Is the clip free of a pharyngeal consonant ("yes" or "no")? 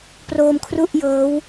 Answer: yes